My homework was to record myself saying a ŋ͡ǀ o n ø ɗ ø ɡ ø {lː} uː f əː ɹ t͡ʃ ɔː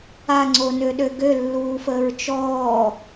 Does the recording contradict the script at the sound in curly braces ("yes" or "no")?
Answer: no